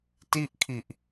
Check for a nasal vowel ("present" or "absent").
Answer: absent